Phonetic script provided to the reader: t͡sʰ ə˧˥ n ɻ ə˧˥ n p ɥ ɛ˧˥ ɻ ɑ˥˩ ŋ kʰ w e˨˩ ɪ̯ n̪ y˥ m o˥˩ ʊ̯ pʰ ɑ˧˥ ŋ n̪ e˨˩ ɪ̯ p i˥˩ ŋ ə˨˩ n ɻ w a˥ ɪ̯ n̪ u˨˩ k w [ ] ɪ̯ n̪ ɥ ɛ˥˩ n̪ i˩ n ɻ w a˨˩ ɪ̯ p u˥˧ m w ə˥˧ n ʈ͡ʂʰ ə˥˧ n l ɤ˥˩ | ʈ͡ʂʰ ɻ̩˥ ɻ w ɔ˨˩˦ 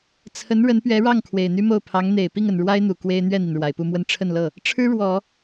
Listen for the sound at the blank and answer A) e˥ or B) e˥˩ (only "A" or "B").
A